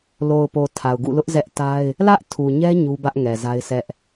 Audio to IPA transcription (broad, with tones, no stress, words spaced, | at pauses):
lo˨ʊ̯po˨ tʰa˨ʊ̯ɡṵ˦˨lʊ˦ʔ zɛ˦ʔta˦ɪ̯ | lä˦ʔtʰu˨ɲɛ˦ ɲu˦bä˦ʔ ŋɛ˨za˦ɪ̯sɛ˦ʔ